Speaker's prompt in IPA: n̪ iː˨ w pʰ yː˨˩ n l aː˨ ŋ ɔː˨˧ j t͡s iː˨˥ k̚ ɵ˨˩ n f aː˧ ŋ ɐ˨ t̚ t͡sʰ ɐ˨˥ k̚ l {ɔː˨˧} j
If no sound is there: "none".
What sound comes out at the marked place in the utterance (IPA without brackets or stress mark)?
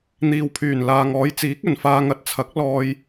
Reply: ɔː˧